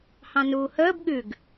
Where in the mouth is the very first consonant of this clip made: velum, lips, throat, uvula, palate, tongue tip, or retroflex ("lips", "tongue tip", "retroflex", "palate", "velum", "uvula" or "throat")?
throat